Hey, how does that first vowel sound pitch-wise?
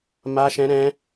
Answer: high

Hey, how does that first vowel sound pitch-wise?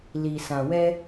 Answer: low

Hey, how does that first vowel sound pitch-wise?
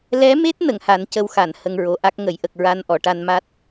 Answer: rising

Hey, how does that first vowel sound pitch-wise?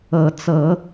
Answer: rising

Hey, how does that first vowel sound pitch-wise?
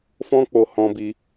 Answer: high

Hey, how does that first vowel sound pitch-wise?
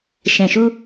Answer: low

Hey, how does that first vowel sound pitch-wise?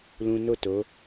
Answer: high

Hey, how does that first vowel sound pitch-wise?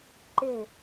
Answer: falling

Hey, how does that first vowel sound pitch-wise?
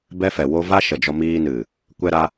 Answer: high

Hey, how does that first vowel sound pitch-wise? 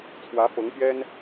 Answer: rising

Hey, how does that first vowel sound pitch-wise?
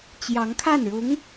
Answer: rising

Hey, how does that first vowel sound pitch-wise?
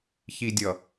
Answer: low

